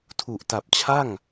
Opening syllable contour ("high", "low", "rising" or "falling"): low